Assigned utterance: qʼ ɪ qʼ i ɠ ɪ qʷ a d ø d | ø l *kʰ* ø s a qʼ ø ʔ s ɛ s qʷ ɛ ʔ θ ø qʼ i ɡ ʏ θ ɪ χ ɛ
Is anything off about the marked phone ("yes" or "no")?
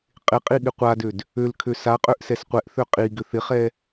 no